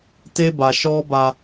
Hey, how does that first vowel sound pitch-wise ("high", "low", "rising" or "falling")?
high